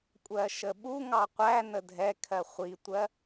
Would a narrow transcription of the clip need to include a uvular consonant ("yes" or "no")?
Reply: yes